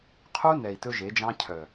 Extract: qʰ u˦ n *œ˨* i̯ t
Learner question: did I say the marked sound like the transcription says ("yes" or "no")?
no